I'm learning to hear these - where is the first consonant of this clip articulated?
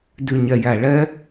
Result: tongue tip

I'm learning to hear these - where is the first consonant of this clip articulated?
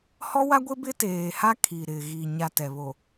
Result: throat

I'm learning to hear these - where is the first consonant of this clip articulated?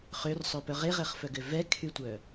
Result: uvula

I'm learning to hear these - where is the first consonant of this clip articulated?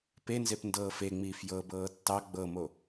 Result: lips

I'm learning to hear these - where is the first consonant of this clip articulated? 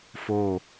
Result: lips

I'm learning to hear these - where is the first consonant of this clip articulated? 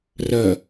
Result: tongue tip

